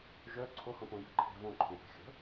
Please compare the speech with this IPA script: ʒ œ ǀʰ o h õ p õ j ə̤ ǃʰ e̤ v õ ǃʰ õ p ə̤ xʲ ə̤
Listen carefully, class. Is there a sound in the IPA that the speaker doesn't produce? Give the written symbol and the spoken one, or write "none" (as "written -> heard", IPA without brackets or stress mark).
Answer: none